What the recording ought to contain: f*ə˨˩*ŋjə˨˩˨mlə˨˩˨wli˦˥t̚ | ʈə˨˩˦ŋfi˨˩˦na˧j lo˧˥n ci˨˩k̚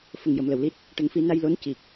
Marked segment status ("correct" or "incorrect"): correct